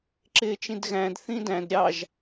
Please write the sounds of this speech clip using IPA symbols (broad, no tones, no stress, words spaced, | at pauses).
ǁɪːt͡ʃĩdɣæ̃d θĩdæ̃d ɾʲɑʒ